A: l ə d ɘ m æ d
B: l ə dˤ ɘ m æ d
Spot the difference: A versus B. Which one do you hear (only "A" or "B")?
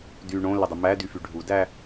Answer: B